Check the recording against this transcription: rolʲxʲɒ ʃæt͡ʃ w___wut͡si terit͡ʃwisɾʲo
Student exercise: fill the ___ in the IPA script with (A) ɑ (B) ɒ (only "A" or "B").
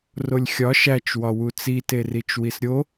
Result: B